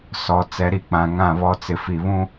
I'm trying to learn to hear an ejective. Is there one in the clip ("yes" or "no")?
no